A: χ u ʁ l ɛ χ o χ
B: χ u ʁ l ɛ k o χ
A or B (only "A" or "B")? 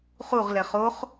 A